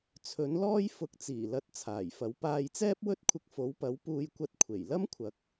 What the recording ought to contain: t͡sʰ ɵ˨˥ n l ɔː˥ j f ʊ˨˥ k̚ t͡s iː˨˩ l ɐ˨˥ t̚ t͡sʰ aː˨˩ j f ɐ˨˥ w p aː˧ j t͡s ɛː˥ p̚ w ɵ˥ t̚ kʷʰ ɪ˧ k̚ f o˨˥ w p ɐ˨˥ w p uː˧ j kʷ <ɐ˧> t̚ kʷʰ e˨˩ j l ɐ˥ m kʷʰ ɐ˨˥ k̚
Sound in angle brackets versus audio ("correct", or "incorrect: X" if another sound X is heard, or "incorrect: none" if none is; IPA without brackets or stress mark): correct